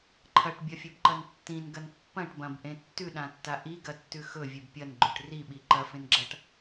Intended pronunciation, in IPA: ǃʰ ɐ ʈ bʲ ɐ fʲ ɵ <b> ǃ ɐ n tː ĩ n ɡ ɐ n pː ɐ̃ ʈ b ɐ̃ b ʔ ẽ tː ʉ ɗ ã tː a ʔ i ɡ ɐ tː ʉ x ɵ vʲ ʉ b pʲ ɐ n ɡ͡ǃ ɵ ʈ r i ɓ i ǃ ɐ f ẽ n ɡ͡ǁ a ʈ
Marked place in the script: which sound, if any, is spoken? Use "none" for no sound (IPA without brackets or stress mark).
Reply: b